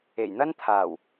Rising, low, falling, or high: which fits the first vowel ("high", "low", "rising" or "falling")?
low